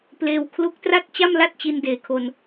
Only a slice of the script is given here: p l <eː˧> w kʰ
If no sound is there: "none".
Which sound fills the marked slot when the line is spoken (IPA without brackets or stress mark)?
eː˧